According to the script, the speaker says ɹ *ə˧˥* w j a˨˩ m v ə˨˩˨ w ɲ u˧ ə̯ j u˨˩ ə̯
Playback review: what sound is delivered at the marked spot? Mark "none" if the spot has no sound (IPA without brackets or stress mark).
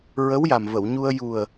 ə˧˥